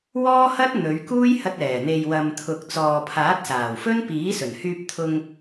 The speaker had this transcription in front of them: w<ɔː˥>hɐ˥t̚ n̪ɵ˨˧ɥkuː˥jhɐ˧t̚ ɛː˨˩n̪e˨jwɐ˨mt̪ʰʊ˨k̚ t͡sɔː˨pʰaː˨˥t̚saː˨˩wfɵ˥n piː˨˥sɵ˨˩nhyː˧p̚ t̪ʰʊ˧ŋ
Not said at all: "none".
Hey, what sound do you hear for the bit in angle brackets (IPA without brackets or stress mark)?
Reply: ɔː˥